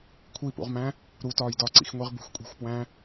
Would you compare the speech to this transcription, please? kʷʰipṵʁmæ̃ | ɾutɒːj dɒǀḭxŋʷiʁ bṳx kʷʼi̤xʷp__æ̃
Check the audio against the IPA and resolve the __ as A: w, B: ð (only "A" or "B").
A